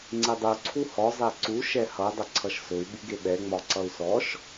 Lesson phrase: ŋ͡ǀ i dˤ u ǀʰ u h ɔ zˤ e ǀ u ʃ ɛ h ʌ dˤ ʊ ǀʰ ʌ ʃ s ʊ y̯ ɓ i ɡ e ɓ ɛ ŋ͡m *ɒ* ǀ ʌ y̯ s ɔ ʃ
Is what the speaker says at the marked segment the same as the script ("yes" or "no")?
yes